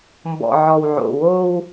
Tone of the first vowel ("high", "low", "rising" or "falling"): low